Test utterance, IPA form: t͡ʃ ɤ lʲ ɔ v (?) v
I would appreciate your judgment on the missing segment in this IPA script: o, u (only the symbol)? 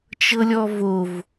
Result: o